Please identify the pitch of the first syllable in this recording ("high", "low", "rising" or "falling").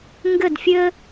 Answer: falling